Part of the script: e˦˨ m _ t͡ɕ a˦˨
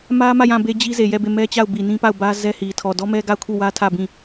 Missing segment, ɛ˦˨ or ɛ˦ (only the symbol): ɛ˦